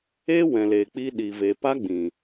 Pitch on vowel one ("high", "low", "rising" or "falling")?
high